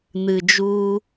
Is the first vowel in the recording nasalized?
no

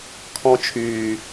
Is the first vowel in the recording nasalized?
yes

